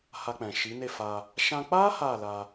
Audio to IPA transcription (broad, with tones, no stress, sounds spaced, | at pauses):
h a˧ k͡p ɛ̃˨ ʃ i˨˦ n e˦˨ f a˧ | ʃ ã˧ k͡p a˦ h a˦˨ l a˧